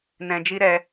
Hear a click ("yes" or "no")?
no